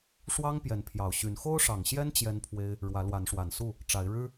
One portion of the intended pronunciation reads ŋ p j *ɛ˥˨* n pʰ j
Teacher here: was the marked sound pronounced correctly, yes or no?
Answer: no